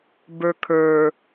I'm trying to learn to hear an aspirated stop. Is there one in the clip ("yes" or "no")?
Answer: yes